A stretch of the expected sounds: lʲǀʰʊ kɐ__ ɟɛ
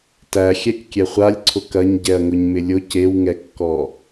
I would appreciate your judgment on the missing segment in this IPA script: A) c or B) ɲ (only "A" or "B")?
B